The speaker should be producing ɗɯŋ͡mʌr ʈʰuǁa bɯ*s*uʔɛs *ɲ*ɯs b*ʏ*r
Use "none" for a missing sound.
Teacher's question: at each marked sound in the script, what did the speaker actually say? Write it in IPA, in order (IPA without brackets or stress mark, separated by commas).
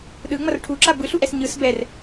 ɬ, ɲ, ɛ